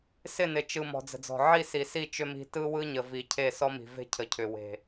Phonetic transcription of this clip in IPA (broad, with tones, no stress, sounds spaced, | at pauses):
s ɪ˦˨ n ɪ˨ t͡ʃ ɯ˨ m ɔ̤˨ d͡z ə̤˨ d͡z ɔ̤˨ ʕ i˦˨ s i˨ s i˦˨ t͡ʃ ʏ˦ m i̤˦ t ɯ˦ w ɯ˦ ɲ ə˨ v i˨ cʰ e˦˨ s ɔ˦ m i̤˨ v e̤˦ cʰ ə˨ cʰ ʏ˨ w e̤˨